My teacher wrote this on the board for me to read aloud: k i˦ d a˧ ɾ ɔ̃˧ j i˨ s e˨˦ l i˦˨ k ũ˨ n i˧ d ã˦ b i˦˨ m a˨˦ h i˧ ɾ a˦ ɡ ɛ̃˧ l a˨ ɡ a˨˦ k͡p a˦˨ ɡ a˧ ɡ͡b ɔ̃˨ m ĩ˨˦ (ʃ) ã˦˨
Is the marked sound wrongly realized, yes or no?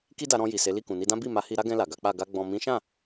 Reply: no